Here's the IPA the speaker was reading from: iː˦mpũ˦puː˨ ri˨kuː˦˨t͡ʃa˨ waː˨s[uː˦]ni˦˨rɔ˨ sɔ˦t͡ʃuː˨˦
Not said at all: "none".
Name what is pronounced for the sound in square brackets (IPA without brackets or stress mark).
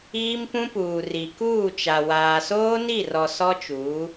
oː˦